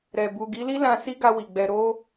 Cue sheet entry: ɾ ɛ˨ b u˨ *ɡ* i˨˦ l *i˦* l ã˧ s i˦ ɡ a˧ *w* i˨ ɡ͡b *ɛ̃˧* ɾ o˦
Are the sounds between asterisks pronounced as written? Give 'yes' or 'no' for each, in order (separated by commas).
yes, yes, yes, no